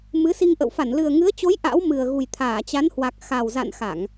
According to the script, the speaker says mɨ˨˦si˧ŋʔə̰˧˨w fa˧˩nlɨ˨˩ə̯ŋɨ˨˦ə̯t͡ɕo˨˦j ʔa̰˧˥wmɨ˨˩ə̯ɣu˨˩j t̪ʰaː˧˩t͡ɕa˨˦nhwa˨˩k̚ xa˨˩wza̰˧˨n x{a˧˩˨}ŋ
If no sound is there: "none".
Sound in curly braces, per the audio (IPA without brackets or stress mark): a˧˩˨